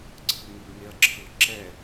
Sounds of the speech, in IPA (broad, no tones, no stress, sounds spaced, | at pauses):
ǀʰ ɯ ŋ ɯ b ŋ e ɐ̯ ǁʰ ɯ ǁ ɛ